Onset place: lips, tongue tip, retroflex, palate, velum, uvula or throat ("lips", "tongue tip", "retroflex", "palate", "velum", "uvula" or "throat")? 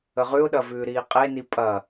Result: uvula